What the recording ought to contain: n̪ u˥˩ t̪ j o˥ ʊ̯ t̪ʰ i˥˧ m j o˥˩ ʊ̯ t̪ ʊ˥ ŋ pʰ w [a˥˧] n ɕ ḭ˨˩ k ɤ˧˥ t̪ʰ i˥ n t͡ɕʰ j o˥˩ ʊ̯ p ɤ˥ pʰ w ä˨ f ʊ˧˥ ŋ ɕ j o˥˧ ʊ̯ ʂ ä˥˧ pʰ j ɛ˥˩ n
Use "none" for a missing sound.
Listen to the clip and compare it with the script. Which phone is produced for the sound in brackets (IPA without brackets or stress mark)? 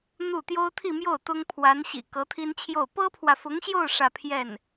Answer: a˧˥